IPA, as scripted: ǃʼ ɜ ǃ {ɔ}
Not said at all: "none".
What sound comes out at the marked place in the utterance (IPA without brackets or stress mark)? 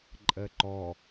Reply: ɔ